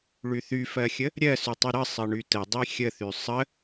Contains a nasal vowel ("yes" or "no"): no